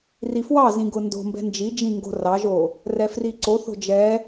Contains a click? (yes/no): yes